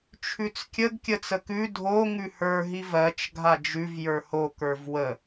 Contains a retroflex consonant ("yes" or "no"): no